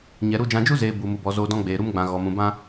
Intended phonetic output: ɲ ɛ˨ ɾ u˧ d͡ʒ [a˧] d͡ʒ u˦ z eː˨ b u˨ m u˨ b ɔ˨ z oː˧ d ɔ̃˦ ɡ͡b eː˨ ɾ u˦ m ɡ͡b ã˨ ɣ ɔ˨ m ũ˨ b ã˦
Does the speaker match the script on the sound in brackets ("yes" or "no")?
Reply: no